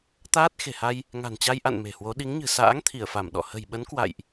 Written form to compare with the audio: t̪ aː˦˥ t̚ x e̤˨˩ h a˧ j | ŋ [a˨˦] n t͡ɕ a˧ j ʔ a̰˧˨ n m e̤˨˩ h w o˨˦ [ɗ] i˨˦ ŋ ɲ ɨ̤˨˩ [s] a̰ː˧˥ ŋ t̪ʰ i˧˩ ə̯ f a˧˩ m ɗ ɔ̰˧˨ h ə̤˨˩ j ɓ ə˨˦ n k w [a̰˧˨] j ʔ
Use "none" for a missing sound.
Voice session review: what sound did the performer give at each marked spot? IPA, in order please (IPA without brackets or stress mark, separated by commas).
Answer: a̤˨˩, ɗ, s, a̰˧˨